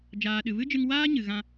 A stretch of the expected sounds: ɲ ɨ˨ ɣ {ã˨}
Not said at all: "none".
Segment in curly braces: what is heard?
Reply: ã˧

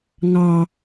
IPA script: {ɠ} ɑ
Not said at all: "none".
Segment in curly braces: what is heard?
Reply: ŋ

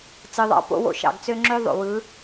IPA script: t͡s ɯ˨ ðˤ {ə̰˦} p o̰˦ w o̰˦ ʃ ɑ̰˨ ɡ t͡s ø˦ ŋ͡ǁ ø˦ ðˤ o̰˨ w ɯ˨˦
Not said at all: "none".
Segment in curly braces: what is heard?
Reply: ɑ̰˦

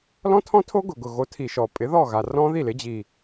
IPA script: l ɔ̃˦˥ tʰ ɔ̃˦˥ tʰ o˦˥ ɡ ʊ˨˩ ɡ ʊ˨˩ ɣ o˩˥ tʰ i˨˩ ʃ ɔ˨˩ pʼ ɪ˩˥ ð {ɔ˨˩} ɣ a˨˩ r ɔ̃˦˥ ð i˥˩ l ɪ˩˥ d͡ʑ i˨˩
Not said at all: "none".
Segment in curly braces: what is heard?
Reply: ɔ˥˩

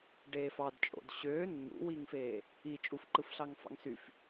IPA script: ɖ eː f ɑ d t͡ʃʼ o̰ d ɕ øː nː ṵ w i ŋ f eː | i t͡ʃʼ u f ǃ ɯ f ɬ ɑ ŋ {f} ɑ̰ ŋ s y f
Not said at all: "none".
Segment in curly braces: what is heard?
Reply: f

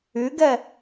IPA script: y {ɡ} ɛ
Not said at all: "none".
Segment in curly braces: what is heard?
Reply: ɡ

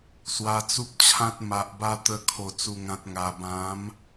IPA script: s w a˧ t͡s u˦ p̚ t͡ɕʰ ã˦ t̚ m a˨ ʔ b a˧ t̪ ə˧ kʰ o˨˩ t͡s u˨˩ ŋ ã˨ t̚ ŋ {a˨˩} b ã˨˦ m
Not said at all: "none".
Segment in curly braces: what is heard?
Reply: a˨˩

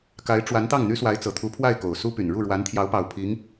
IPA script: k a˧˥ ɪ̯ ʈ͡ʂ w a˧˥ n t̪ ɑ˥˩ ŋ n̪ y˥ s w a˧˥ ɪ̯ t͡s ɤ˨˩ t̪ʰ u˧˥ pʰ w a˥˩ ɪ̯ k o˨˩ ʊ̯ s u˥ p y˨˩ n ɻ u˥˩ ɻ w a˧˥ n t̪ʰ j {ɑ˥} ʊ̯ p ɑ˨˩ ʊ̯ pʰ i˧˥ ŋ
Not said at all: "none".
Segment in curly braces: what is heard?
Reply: ɑ˧˥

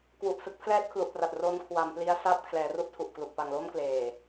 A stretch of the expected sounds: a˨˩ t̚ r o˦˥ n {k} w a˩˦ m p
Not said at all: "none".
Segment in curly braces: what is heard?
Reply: kʰ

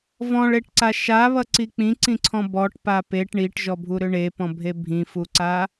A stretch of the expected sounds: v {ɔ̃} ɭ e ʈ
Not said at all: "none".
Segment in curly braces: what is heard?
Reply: ɔ̃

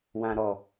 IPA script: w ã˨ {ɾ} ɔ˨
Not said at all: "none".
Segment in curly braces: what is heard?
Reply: ɾ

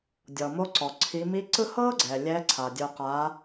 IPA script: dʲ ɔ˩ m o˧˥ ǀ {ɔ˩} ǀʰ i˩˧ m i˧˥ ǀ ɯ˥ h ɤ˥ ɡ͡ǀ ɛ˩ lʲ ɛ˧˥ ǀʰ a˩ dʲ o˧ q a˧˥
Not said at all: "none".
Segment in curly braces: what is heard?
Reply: ɔ˩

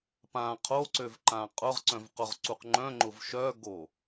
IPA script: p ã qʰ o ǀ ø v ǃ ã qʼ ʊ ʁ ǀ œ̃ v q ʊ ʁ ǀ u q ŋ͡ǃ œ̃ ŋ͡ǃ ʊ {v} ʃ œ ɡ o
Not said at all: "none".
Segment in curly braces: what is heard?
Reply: v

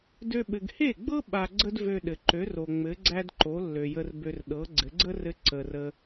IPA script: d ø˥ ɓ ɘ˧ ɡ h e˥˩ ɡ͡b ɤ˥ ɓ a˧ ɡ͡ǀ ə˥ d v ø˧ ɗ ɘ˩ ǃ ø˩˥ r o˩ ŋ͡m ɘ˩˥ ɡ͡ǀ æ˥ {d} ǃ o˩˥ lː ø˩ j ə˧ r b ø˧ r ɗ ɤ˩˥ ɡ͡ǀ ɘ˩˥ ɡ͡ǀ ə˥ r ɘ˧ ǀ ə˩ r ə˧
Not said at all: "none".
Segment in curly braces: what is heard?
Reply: d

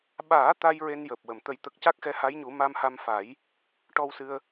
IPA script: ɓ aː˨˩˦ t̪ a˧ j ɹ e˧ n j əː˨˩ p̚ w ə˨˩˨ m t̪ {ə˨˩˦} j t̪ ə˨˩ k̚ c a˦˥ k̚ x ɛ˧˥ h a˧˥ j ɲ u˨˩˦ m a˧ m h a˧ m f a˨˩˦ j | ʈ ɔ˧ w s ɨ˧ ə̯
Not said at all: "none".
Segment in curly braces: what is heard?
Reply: ə˨˩˦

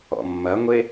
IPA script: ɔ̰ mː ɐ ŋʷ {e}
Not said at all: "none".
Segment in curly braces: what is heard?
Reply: e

